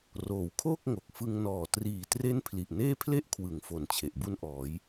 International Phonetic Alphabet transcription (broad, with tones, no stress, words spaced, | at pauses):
roː˩˦wkʰoː˥˩k̚ ŋo˨˩k̚ fɯ˧ŋ nɔː˨˩ triː˨˩tre˦˥n pʰli˨˩ʔneː˥˩pʰle˥˩ʔkʰwɯ˩˦ŋ fo˨˩nt͡ɕʰe˨˩ʔbu˦˥nʔɔː˩˦j